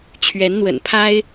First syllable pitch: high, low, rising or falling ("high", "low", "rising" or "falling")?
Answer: rising